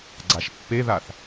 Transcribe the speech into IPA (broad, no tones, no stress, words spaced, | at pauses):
ɡ͡ǀaʃpːeðaθ